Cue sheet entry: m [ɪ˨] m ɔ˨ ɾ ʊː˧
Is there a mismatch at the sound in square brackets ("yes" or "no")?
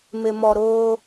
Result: no